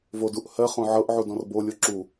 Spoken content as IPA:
v o d u ʔ h ɜ χ õ ʕ ɤ ʔ ʕ u d ɔ̃ r b o lʲ o ǁ u

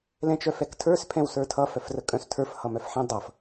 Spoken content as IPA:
l ɛ̃ t͡ʃ œ f ɛ k tʰ ə˞ s pʰ ɛ̃ w s ə˞ tʰ ʌ f œ f r ə kʼ œ̃ s tʰ ə˞ f h ʌ m œ f ħ ɛ̃ dˤ ʌ f

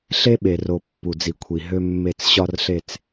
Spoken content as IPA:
ɬ e˦ ɓ e˨ r o˨ pː u˨ d͡z i˨ kʷʰ i˨ ɦ ø˦ mː e˦˨ t͡s ɕ ɒ˦ r ɬ e˦ t͡s

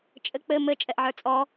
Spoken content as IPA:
t͡ʃʼ ɘ k͡p ɘ m ɘ t͡ʃʼ ɛ ʔ ʕ ə˞ t͡sʼ ɔ

